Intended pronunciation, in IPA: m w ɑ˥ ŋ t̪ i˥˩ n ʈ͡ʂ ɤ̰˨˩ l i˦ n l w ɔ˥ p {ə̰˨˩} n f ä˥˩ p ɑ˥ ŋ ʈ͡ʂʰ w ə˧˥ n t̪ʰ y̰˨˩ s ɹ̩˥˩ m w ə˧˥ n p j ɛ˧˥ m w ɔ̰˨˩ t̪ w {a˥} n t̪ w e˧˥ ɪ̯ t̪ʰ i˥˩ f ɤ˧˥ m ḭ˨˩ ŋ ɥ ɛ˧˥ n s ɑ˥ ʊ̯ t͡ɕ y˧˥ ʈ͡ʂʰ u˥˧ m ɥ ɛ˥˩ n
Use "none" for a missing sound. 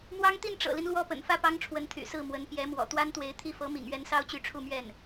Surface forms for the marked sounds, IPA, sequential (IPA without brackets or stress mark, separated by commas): ə̰˨˩, a˥